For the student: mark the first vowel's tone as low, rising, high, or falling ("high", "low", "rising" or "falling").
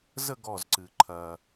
falling